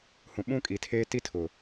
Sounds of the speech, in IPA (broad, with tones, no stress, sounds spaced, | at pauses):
h ũ˨ ɓ ũ˦ kʼ i˨ tʰ eː˦ t i˦ tʰ ʊ˨